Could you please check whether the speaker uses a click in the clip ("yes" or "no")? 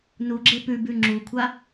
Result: yes